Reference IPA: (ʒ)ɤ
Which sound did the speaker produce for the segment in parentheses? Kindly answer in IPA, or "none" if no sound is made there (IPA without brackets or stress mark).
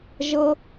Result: ʒ